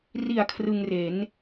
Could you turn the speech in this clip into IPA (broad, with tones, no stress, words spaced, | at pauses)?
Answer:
ri˨˩a̯ kʰrɯ˧ŋre˩˦n